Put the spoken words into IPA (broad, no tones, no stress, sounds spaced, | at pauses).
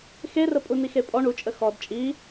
x e r ə pʼ u n i x e pʼ ɔ ɳ u t͡ʃʼ ə x ɔ d t͡ʃʼ i